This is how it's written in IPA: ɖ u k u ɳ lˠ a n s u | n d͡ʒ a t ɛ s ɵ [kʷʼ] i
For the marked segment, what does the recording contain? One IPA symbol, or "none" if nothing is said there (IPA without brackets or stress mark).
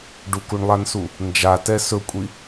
kʷʼ